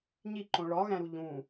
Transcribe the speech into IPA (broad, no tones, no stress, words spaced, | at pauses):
ɲiǃõ ɭɒɣæ̃ɾu ʎũ